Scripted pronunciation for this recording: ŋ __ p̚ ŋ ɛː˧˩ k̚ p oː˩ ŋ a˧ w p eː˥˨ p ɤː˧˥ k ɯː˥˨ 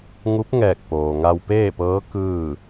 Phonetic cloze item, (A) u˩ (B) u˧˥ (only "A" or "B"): B